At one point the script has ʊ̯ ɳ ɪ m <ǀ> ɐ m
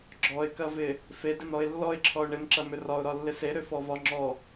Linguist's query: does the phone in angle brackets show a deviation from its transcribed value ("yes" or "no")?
yes